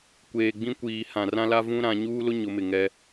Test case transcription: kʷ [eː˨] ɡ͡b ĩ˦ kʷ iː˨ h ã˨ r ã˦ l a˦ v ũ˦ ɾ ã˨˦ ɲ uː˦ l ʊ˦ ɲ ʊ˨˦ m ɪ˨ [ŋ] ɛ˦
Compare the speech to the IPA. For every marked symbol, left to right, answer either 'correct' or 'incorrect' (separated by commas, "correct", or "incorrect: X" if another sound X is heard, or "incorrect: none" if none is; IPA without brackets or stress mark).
correct, correct